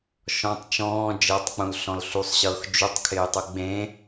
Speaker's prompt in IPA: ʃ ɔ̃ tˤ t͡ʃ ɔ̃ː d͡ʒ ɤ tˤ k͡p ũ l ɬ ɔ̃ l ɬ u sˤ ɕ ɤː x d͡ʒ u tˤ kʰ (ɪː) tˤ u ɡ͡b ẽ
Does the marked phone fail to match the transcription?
no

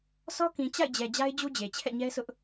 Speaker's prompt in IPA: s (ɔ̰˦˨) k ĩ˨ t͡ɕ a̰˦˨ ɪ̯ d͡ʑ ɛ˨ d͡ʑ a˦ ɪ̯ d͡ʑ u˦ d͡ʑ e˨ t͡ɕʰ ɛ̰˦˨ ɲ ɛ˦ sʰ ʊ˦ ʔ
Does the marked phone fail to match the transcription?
yes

